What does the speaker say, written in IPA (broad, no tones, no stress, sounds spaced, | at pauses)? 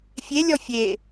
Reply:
fʲ e lʲ ɔ fʲ e